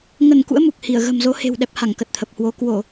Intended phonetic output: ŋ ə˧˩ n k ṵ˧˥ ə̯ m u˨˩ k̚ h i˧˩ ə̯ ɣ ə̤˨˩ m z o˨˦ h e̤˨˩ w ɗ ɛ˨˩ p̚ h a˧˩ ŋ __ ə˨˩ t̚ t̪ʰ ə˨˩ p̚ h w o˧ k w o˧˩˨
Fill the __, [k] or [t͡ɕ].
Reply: k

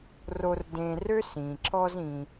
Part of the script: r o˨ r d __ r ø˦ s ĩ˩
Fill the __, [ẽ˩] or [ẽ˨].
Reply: ẽ˨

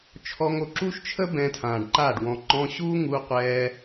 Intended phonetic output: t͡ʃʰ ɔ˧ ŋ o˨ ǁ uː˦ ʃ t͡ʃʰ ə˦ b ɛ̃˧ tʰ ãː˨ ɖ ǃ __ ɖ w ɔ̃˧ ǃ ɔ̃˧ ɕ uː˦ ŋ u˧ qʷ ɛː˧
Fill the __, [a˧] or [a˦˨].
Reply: a˦˨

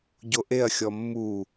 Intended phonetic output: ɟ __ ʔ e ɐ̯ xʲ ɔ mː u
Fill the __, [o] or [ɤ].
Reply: o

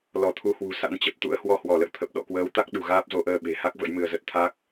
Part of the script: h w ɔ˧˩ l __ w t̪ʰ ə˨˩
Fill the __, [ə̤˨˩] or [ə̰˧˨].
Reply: ə̰˧˨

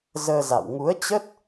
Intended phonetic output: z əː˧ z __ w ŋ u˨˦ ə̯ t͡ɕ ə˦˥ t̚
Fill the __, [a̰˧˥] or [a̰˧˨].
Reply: a̰˧˨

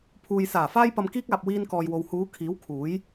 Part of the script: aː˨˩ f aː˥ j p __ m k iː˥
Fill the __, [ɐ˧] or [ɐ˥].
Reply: ɐ˧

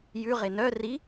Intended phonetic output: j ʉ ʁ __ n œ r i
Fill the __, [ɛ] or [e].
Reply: e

